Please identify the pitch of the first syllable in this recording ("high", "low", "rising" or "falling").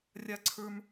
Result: high